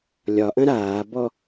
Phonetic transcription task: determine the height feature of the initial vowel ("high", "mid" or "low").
low